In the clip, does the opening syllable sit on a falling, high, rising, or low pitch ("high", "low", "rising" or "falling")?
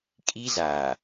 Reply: high